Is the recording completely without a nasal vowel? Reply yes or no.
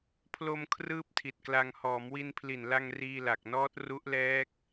yes